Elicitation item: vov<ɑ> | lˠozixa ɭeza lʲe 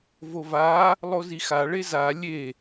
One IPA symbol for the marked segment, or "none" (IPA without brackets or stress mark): a